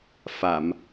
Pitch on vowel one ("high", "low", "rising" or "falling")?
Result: low